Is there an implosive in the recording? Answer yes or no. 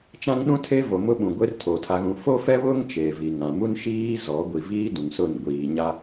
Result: yes